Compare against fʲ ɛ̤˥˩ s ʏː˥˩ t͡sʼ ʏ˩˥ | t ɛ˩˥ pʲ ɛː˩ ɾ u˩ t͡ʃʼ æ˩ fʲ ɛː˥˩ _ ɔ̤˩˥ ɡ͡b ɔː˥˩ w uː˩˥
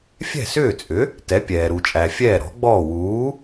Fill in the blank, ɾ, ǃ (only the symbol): ɾ